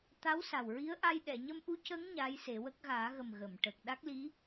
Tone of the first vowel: rising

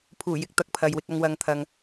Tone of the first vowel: low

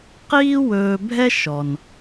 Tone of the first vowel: high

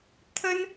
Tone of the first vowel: high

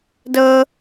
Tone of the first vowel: high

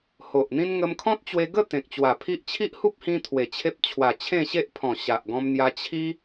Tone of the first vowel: low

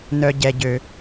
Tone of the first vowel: low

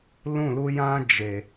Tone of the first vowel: falling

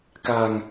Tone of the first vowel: low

